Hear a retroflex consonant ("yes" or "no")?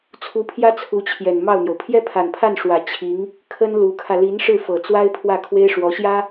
yes